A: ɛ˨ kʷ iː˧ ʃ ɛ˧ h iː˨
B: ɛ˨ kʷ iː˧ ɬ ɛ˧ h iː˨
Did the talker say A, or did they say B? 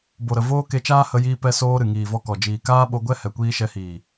A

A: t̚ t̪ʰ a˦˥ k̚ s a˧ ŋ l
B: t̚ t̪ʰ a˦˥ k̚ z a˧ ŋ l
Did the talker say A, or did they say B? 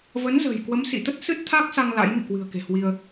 A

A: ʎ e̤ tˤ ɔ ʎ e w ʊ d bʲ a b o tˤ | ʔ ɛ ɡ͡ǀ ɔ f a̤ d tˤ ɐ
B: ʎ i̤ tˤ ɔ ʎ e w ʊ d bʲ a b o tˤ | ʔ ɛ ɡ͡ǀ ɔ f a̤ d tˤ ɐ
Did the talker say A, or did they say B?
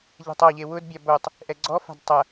A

